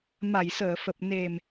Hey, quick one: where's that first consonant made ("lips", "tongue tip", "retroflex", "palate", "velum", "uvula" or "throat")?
lips